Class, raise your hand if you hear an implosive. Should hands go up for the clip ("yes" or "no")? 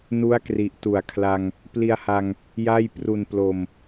no